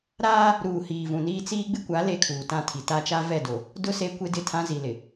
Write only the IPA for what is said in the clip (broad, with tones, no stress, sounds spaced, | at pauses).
ɾ aː˦ | ɾ uː˨ h iː˨ v ũ˨ n iː˦ t͡s iː˦ ɡ͡b ɪ˦ kʷ a˨˦ l e˦˨ kʰ uː˨ t ã˦ tʰ i˨ t a˦ t͡ʃ a˦ v ɛ˦˨ d o˨ | d ʊ˦ s e˦ kʷ e˦ d ɪ˦˨ tʰ ã˦ z i˨ l ɪ˨